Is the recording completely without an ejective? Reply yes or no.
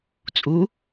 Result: no